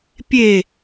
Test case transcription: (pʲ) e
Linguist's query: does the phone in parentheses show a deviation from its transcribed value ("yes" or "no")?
no